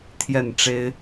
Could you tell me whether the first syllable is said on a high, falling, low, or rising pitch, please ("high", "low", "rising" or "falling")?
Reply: falling